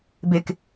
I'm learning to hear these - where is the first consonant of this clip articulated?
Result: lips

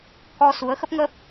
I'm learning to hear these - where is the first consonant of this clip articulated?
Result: velum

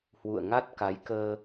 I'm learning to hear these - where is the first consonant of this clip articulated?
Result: throat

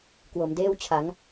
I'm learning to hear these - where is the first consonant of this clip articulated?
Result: velum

